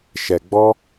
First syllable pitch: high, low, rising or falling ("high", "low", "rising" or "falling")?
low